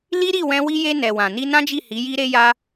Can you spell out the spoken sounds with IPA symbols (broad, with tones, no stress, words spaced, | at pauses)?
li˦ɾi˦˨wɛ̃˧ wi˧je˧ nɛ˨wã˨ ni˧nã˦d͡ʒi˦˨ hi˨˦ji˦ɾe˦ja˦